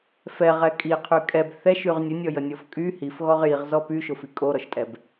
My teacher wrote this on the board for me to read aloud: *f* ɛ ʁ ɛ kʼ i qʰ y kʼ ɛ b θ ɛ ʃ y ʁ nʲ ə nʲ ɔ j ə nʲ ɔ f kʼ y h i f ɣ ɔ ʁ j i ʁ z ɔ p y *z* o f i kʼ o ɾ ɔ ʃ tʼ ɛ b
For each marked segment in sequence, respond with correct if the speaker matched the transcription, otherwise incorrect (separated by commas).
correct, incorrect